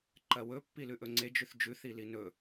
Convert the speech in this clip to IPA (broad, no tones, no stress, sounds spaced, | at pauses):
ǃ ɐ w ɵ pː i l ʉ ʔ ɵ ŋ͡ǀ e d͡ʒ ʉ θ d͡ʒ ʉ θ i l i n ɵ